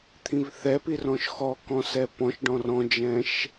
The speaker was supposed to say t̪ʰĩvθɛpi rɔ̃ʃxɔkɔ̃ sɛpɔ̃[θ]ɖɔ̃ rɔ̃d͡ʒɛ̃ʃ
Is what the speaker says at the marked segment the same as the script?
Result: no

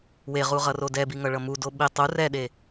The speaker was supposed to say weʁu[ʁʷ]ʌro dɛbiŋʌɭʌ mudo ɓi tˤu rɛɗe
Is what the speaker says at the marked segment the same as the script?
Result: no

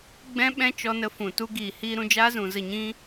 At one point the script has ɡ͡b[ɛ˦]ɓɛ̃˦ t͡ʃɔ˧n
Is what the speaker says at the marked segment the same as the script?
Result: no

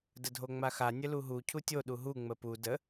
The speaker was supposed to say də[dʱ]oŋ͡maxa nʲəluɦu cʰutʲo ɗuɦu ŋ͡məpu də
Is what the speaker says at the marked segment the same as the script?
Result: yes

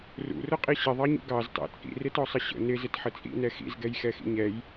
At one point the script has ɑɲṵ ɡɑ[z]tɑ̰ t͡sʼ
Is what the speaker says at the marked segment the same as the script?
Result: yes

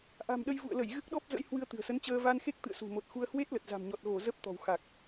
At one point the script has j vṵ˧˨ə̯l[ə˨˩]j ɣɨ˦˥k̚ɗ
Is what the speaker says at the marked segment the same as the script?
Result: no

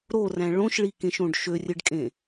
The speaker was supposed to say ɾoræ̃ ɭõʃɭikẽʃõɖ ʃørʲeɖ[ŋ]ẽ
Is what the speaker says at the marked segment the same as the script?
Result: no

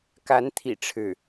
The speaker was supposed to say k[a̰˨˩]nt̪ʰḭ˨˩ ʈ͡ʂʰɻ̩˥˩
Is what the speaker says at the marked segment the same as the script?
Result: no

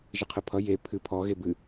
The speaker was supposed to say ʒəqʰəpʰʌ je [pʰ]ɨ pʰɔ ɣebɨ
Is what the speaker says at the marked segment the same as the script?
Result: yes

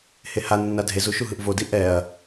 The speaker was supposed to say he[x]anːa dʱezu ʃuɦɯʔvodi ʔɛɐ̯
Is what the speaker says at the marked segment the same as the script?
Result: no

